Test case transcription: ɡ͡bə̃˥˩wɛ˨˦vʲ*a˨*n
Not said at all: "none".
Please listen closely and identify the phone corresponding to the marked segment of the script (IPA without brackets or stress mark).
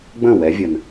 ə˨